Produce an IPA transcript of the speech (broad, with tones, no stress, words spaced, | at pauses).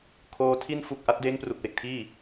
kʰoː˧ tʰi˧nfu˨˩k̚ ʔa˦˥t̚deː˦˥ŋpru˨˩k̚we˨˩k̚ tʰiː˥˩